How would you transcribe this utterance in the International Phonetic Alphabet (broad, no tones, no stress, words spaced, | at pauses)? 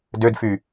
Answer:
dødfy